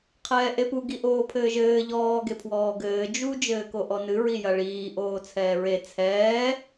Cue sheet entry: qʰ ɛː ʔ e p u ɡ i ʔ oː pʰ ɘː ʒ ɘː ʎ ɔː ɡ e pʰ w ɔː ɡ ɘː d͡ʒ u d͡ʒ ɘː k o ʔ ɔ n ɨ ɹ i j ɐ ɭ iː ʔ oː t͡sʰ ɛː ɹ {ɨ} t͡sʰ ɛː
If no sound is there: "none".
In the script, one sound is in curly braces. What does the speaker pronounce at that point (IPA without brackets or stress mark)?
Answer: e